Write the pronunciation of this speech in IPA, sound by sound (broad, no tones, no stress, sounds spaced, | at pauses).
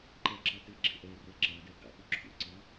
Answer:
ǃ ɛ ǁ ɑ t ɪ ɡ͡ǁ ɪ ʔ ɛ r ɛ ǁ ɑ d ɛ ɡ ɑ̰ p ʊ ǁʰ ṵ ǀ ɑ